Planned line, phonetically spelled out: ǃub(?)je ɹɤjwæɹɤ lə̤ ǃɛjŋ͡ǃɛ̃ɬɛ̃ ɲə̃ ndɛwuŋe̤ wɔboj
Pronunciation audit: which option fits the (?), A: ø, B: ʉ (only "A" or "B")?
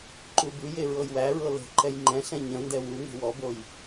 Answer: B